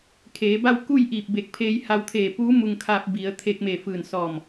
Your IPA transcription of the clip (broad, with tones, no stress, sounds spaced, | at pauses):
kʰ eː˩˧ b a˥˨ w k u˥˨ j ʔ iː˧˩ p̚ b e˧˩ k̚ pʰ eː˧ j h a˧ w t̪ʰ eː˧˩ p uː˧˥ m u˧ ŋ kʰ aː˧ p̚ b i˩˧ ə̯ t̪ʰ e˧ k̚ m e˧˩ f ɯː˧˩ n s ɔː˧˩ m